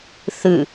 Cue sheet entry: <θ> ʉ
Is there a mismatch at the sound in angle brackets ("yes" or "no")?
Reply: no